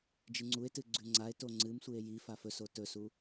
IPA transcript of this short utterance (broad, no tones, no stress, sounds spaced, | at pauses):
d͡ʒ ɨ ŋ͡ǀ u e̯ t ɨ ɡ͡ǀ ʉ ŋ͡ǀ a e̯ t o ŋ͡ǀ ɨ m sʷ ɨ e̯ j i f a f ɵ s o t ɵ s u